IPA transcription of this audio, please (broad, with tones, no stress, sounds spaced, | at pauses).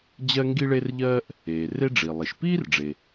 d͡ʑ ɜ˥ ŋ ɡ i˥ ɭ e˥ r ʎ ɜː˥ ʔ | eː˩ r e˥ ɖ͡ʐ i˩ lˠ i˩ ʃ p iː˥ r ɖ͡ʐ e˩